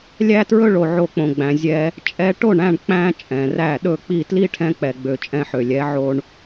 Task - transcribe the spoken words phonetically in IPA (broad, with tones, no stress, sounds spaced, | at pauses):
lʲ æ˦ t ɹ ɵ˦ ɭ o˧ ʕ o˧ k͡p õ˨ ɡ͡b æ̃˨ zʲ ɛ˧ | t͡ʃʼ ɛ˧ ʈ o˦˨ ɳ æ̃˦˨ ɳ k͡p æ̃˦ t͡ʃʼ ɛ̃˨ r æ˦˨ ɗ ɵ˦˨ k͡p i˦˨ t l i˦ ʈʰ ɛ̃˧ k͡p ɛ˨ ɡ͡b ø˨ t͡ʃʼ ɛ̃˧ ħ ø˨ lʲ ɛ˨˦ ʕ o˧ ɳ